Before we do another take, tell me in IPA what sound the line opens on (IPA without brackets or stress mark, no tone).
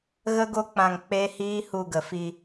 ɣ